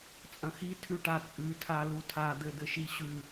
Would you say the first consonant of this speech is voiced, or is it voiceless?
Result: voiceless